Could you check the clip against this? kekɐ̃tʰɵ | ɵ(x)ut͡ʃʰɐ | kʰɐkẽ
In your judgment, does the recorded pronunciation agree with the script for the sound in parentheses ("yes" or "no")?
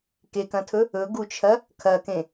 no